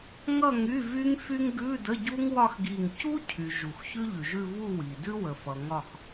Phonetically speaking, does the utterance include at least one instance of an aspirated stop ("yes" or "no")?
yes